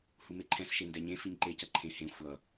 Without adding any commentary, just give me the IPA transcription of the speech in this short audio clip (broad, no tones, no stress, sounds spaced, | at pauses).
h u m e ǃʰ ɛ̃ s ʃ e n d ɛ ɲ ẽ f i ɲ ǃ e c ʌ ǃʰ ẽ h ẽ xʷ ʌ